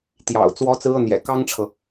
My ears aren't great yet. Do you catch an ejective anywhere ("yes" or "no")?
no